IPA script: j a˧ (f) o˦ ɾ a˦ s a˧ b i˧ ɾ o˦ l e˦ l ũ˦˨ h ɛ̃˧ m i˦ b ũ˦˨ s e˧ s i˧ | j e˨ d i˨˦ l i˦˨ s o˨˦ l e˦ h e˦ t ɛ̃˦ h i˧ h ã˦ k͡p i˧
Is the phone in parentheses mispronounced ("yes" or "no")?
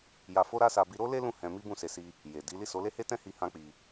no